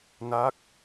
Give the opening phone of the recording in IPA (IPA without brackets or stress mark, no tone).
n